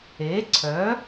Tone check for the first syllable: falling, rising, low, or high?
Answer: rising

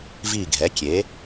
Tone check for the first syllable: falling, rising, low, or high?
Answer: falling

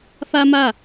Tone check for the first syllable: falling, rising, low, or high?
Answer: high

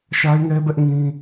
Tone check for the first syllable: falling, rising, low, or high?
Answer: high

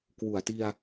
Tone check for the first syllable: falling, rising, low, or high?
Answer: low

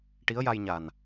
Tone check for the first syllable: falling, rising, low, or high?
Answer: rising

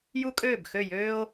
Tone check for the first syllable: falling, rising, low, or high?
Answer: high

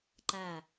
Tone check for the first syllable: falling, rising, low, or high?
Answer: falling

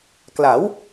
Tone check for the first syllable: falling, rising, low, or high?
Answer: rising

